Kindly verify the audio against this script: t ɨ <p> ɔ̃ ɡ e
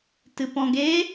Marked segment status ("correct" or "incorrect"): correct